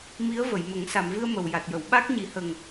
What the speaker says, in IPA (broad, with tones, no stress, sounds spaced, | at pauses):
m i˧˥ ə̯ v ə˨˩˨ j m ə˨˩˦ ŋ s a˨˩˨ m v ɨ˧ ə̯ m ə˨˩ w j a˨˩ t̚ j ə˨˩˨ w ɓ a˦˥ k̚ ɲ i˨˩˦ h ə˨˩ ŋ